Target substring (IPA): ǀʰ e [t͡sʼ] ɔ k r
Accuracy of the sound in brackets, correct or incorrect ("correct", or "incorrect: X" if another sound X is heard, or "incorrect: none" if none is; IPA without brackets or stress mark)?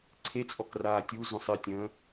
correct